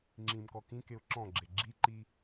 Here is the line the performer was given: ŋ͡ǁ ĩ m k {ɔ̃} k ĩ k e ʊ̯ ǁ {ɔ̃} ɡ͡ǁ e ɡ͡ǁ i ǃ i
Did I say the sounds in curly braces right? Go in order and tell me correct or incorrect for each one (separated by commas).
incorrect, correct